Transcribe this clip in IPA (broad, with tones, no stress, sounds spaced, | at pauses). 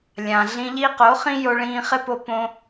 lʲ ã˨ ɮ ĩ˧ ʎ i˦ q o˨˦ χ ĩ˦ j o˧ ɭ ĩː˧ χ ɪ˦ p o˧ p õ˦